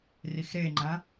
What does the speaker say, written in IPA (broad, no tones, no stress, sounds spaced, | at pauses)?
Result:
r i x ɾ e ŋ͡ǃ ã